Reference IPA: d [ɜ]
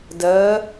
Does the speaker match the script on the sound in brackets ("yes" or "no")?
yes